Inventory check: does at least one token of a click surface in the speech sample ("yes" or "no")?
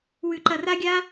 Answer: yes